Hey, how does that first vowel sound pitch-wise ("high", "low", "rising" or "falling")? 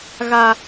high